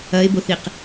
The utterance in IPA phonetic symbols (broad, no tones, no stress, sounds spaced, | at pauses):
ɐ e̯ b o θ i q